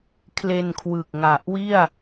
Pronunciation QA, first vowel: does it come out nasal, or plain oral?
oral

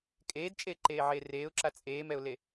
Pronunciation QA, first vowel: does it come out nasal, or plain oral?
oral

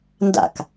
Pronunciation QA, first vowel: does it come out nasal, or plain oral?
oral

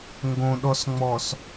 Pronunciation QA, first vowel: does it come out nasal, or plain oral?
nasal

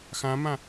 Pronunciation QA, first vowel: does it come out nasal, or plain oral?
nasal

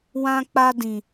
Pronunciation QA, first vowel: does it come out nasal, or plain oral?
nasal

